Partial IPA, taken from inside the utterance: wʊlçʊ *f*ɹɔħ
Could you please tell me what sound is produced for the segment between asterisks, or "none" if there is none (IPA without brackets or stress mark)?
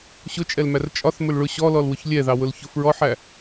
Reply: f